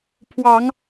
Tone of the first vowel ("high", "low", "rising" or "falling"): low